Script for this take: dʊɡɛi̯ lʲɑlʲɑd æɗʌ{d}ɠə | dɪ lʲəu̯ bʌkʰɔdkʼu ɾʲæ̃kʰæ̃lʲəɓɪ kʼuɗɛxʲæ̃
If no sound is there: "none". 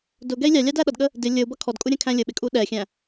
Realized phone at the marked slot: d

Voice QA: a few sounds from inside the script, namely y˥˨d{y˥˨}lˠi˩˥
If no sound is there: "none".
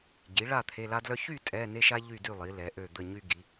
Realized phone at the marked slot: y˥˨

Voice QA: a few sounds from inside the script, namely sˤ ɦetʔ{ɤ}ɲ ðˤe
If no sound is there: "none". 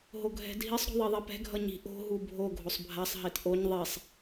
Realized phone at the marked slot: o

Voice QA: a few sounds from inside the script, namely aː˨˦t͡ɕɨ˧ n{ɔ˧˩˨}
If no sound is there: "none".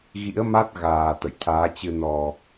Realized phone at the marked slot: ɔ˨˩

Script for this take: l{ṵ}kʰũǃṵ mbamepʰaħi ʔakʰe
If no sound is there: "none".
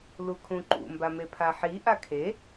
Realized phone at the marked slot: u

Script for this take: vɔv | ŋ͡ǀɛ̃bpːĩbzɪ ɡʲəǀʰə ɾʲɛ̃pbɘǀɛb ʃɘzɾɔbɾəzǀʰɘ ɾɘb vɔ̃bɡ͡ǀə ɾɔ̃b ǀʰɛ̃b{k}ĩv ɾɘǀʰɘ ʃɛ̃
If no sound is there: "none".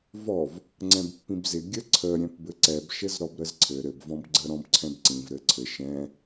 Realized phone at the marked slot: ǀ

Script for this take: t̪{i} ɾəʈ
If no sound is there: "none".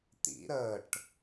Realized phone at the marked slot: ḭ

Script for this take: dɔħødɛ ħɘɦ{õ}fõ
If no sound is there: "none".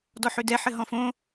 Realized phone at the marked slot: ɔ̃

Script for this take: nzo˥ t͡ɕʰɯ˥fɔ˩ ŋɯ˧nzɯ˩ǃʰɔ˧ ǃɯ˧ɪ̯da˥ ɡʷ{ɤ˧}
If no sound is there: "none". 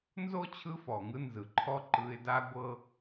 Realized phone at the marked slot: ɤ˧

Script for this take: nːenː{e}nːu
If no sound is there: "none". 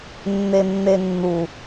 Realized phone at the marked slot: e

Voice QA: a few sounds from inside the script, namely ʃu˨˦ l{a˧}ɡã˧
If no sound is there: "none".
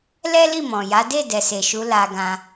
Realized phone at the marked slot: a˧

